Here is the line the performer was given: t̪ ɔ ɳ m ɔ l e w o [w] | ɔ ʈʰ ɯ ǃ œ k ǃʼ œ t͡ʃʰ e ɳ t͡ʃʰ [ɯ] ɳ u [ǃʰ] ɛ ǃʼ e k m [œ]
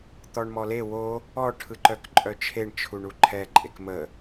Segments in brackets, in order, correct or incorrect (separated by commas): incorrect, incorrect, correct, incorrect